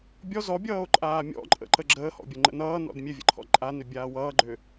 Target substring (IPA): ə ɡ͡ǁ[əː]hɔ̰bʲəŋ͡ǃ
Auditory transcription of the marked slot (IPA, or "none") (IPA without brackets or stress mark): əː